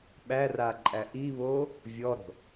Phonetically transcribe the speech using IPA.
ɓæraǃʼæ ʔiβo | vʲɔɾo̤

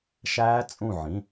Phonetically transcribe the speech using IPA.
ʃæː˦˥ t͡sʼũ˧˩ ʕĩ˩˧˩

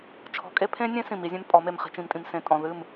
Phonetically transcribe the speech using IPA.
t͡ʃʰɔ̤˨kʼe˦pʰẽ˦nʲẽ˦ sĩ˨mi˨˦zʲẽ˦mpʼɔ˨˦ me˨mχi̤˨t͡ʃĩ˨mtʼĩ˨m sẽ˨tʼɔ̃˨ðɨ˦˨m

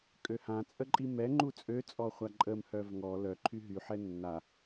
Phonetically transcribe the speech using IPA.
kʼøhãt͡sʼəǃʼi mɛ ŋ͡ǃut͡sʼøt͡sʼɔχʷa ǃʼəm hœvŋɔ lœ ǃʰyɦyħɛ nːa

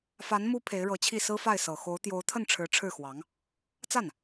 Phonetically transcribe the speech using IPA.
fa˧˥n mu˥ pʰe˧˥ɪ̯ɻɤ˧˥t͡ɕʰi˥˩ sɹ̩˥fa˥˩ɪ̯ sɤ˨˩xo˧˥ʊ̯ t̪jo˧˥ʊ̯t̪ʰə˥˩n ʈ͡ʂʰɻ̩˧˥ ʈ͡ʂʰɻ̩˥˩xwɑ˧˥ŋ | t͡sa˥˩n

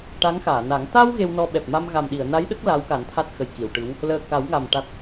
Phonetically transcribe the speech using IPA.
ʈa˧˥ŋxaː˨˩˨na˨˩˦ŋ t̪a˧w ɣe˧wnɔ˧ ɓɛ˨˩p̚ma˧mɣa˨˩mɗi˨˩˨ə̯ na˧˥jɗə˦˥k̚ la˧˥wka˨˩˦n t̪ʰa˦˥t̚xə˨˩jki˨˩˨wʈɨ˧˥w | ləː˨˩ ka˨˩˦wŋa˨˩m ʈa˦˥t̚

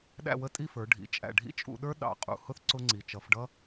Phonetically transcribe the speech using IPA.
ɗæ̰˥˧wə˥˧tʼi˥˧fə˞˩˧ ɖʱḭ˩˧ t͡ʃʼæ̰˧˩ɖʱḭ˥t͡ʃʼṵ˧ɗə˞˥ ɗɑ̰˧˩ qʼṵ˧˩hʊ˥θ ǀʊ˥ŋ͡ǀi˩˧ t͡ʃʌ˩˧fɖʌ˥

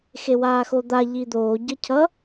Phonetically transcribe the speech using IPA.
xewaːxod̪a ʎid̪oː ɟʌcʰʌ

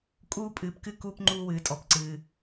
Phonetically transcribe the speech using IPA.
kʼuː˧pʼɨː˨pkɨ˧ kuː˧pŋ͡ǃuː˧wɨː˨tʼɔ˨p ǀɨː˨

